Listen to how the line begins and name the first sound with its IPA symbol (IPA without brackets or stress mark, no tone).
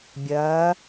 bʲ